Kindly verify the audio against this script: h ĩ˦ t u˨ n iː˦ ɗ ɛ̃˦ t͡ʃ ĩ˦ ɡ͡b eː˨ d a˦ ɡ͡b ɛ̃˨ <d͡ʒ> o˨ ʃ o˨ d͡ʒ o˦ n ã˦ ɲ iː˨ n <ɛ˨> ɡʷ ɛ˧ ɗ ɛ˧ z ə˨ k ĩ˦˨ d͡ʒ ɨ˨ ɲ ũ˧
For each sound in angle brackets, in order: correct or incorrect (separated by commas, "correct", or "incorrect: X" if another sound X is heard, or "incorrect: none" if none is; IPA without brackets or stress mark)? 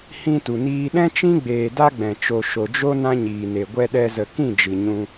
incorrect: t͡ʃ, incorrect: e˨